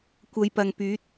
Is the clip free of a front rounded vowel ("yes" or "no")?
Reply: no